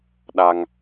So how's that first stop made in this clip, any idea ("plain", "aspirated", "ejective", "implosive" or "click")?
implosive